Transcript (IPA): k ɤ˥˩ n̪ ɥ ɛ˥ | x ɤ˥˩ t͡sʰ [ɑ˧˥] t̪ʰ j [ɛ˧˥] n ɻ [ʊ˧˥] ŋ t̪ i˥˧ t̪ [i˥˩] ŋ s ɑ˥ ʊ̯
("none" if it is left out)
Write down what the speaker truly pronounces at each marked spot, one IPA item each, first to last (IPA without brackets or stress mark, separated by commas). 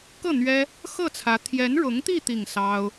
ä˧˥, ɛ˧˥, ʊ˧˥, i˥˩